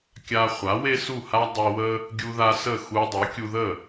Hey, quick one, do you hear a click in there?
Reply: no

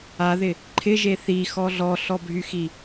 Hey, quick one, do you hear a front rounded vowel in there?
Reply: yes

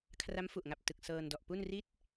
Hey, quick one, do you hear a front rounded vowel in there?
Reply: no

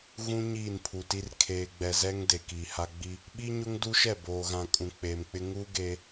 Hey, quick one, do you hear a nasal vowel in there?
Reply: yes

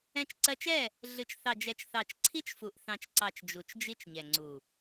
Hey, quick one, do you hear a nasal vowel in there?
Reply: yes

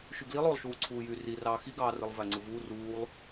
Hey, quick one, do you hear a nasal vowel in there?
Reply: no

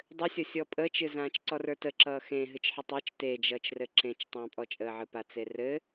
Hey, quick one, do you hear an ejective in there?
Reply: yes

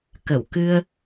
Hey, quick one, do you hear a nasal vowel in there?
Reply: no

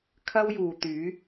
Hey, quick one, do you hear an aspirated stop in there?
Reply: yes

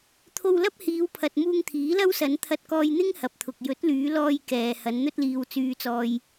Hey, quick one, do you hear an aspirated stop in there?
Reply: yes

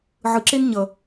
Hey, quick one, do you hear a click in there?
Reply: yes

